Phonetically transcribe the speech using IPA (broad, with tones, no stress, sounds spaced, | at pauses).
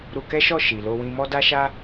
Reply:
ɾ u˧ k ɛ˦ ʃ ɔ˦˨ ʃ i˨ l o˧ w ĩ˧ m ɔ˦ d a˦ ʃ a˦